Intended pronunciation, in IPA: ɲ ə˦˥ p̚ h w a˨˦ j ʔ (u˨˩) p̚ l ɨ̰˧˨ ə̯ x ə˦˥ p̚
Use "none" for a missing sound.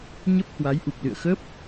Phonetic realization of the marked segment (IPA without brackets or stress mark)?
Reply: u˨˩